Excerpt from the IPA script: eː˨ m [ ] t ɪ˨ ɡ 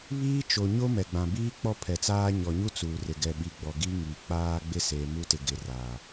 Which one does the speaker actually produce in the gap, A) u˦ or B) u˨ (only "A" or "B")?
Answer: A